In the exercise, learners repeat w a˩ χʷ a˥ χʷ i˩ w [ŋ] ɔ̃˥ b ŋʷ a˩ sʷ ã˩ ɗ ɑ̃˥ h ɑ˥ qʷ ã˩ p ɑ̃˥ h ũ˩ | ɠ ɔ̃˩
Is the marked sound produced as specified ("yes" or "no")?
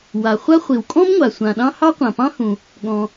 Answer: no